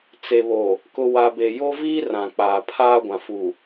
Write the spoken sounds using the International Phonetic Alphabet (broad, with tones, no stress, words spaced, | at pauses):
t͡se˨βo˨ | kʊ˨ wa˨be˨jo˦viː˦ rã˨k͡paː˨pʰaː˦ɡʷã˨ fu˨